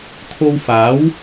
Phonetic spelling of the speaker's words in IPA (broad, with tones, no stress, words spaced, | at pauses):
kʰo˧wfaː˨˥w